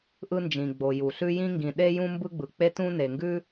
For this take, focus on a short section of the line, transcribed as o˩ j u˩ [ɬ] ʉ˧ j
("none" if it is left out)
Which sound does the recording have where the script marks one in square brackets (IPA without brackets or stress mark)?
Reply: ɬ